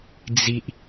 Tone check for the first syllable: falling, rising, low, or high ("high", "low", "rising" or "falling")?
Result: low